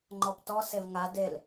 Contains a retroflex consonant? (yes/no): no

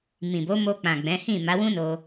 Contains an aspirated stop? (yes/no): no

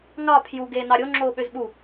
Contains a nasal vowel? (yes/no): no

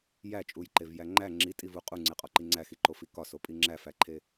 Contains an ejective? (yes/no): yes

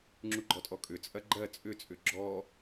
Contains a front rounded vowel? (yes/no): yes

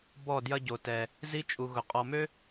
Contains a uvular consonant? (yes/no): yes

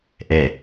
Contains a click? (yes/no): no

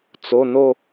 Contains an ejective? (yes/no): no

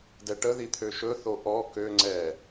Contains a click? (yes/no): yes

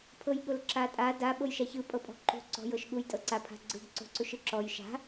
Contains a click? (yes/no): yes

